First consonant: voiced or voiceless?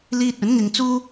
voiced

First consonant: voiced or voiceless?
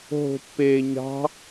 voiced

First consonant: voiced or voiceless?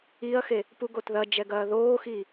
voiceless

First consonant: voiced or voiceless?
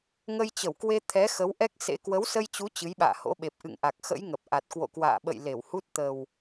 voiced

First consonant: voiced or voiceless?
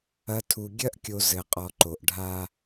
voiceless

